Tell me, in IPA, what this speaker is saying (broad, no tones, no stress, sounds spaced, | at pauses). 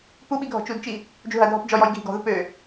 p u ɓ i ɡʱ ɔ̤ t͡ʃ u d t͡ʃ i | d͡ʒ u ɦ ɐ dʱ ɔ p d͡ʒ ɔ j ɔ j ɡʱ i̤ ɡ ɔ̤ ð u p ø